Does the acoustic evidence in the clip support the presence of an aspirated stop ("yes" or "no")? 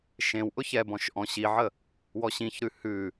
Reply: no